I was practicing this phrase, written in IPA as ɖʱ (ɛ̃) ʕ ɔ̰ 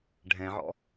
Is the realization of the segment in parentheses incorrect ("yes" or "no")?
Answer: no